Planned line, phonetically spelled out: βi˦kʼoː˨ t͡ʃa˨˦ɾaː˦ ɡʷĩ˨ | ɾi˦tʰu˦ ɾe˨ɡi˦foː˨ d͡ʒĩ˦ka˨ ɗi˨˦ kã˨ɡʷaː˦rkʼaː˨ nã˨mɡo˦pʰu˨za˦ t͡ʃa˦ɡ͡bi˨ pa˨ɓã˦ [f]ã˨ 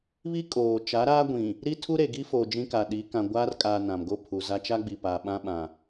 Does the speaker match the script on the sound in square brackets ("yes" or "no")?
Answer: no